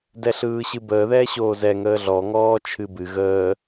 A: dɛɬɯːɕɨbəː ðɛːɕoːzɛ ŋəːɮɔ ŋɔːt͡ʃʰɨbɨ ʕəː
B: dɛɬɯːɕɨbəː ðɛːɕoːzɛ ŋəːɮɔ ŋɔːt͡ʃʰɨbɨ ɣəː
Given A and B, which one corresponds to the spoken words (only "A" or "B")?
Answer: B